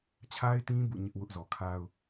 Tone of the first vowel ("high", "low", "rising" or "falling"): high